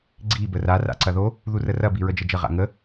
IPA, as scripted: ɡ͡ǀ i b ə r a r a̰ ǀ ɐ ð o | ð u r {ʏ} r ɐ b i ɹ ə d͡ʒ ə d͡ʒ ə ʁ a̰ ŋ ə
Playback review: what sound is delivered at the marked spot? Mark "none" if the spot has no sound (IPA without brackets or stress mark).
ə